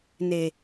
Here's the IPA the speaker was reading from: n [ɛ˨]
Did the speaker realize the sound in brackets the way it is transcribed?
no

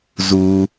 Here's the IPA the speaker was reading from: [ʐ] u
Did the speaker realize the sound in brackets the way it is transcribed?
no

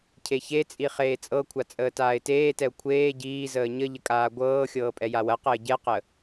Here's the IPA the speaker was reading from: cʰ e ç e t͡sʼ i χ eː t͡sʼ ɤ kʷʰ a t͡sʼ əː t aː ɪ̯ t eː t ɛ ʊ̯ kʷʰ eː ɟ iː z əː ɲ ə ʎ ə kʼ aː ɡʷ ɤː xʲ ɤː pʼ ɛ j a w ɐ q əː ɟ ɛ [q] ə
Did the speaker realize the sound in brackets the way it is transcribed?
yes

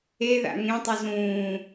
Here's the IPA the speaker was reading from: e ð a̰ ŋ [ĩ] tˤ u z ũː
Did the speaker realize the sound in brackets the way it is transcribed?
no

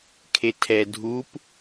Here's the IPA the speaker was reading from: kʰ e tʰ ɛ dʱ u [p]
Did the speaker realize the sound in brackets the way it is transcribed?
yes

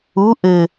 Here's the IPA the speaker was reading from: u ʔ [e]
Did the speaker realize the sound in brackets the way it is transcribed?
no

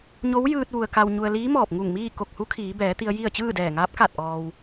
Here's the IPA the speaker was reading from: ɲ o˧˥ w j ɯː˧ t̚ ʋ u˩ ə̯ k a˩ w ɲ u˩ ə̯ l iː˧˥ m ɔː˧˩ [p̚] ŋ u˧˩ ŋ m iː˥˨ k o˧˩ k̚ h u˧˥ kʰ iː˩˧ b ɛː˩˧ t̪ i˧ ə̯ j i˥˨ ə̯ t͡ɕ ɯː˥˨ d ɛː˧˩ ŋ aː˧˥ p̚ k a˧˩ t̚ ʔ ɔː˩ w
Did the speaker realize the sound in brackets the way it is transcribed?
yes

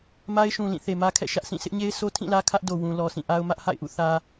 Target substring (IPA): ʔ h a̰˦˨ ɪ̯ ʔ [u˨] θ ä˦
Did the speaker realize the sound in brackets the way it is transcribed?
no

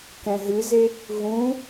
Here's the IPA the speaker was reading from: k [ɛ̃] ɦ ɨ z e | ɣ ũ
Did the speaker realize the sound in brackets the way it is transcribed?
yes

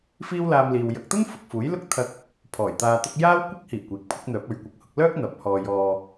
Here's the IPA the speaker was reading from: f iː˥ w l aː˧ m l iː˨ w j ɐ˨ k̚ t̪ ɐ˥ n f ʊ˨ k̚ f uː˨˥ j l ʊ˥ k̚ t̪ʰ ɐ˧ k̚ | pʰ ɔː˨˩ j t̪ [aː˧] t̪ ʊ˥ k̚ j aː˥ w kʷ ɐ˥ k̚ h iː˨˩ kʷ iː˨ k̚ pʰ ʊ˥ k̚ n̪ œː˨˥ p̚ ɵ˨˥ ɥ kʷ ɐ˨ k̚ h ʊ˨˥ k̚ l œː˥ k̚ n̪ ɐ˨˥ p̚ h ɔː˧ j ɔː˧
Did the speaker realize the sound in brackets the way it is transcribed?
yes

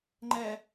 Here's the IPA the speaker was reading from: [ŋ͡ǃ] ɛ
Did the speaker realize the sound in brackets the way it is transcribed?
yes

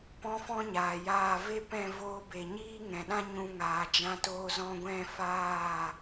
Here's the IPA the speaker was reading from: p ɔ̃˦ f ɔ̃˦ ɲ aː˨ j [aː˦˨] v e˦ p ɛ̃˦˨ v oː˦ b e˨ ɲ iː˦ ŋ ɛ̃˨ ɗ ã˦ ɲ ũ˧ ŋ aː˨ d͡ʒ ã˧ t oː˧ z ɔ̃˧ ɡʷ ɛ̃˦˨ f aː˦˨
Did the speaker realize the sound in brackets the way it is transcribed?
yes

